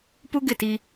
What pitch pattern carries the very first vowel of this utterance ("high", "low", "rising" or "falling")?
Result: high